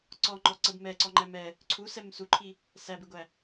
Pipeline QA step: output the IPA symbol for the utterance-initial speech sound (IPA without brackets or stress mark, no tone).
ǀ